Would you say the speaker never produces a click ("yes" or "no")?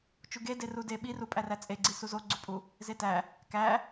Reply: no